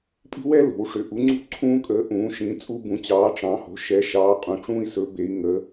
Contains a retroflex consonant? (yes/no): yes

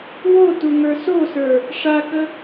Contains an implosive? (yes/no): no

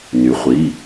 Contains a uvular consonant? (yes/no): yes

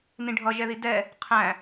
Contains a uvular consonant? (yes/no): yes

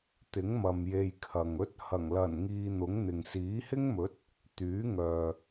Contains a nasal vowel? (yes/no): no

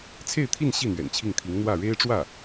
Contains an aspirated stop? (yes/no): yes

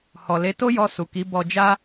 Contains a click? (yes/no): no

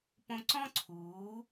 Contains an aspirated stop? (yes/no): yes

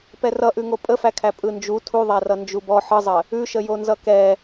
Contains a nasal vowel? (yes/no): no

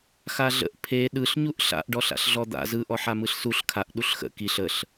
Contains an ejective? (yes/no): no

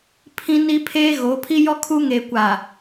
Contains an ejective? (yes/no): no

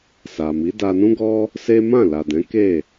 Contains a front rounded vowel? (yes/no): no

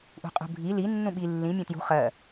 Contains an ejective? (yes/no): yes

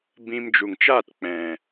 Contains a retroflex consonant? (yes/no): no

